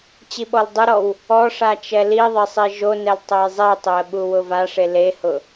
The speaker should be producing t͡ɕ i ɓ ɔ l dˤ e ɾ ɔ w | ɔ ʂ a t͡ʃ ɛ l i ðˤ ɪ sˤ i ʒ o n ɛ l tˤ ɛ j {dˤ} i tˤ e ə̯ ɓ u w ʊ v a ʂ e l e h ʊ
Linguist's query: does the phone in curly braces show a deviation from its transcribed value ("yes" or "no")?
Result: yes